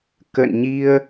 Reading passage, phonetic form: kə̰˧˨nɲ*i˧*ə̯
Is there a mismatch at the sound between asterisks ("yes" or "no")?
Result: no